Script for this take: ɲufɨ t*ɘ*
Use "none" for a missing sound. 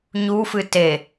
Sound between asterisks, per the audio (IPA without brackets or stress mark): e